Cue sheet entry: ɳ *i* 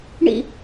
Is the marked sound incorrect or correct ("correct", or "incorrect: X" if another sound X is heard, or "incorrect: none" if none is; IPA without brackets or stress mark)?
incorrect: ḭ